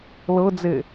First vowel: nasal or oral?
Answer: oral